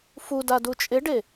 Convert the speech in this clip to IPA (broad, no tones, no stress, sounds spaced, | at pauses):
f u d a d u t͡ʃʼ ɪ ɖ e